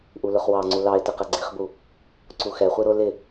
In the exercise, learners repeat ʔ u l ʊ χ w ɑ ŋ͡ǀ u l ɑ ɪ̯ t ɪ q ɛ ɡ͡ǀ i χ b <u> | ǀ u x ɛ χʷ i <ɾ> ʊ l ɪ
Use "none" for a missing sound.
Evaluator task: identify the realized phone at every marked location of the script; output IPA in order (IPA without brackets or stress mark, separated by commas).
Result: u, ɾ